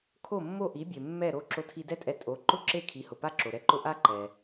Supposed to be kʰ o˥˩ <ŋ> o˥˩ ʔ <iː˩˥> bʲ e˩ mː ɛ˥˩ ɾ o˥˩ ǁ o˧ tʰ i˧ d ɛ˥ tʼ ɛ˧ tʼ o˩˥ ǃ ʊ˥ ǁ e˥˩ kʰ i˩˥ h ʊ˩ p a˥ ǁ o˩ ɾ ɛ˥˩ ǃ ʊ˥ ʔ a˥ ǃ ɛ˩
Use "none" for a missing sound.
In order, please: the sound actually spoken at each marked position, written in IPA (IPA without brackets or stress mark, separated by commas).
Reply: mː, i˩˥